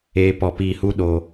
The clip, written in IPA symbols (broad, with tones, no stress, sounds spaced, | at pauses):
eː˦ p ɔ˧ p iː˧ h u˦ ɗ oː˧